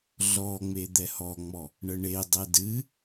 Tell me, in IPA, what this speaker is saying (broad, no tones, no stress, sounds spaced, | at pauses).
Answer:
ɮ ɔ ŋ͡m e d̪ ɛ h ɔ ŋ͡m ɔ | ɳ ə ɳ e dˤ ɛ d ɨ